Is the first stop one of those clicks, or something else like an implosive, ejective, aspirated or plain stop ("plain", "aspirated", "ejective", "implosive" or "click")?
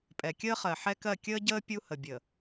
ejective